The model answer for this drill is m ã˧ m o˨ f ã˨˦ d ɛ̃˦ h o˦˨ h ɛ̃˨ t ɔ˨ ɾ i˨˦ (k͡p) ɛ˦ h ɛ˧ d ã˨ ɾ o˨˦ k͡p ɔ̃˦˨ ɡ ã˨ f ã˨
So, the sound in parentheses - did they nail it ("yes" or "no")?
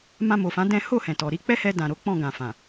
yes